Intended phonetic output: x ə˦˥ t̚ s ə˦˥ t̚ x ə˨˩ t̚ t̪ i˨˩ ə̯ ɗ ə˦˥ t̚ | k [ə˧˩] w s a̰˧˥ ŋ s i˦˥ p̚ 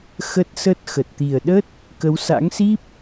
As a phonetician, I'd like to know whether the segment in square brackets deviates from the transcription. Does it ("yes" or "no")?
yes